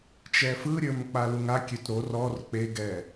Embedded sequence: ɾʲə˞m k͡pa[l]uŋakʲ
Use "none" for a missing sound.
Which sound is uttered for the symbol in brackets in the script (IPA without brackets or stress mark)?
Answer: l